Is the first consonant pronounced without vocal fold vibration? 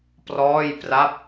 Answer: yes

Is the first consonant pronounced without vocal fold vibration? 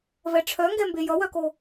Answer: no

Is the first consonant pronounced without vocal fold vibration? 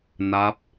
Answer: no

